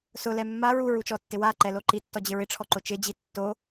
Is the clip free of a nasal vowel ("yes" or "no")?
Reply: yes